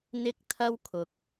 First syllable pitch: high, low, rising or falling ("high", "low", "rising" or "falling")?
high